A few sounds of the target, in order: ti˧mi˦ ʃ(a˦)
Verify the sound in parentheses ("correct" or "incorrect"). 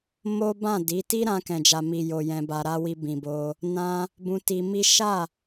incorrect